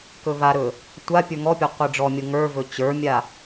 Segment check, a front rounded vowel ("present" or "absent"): absent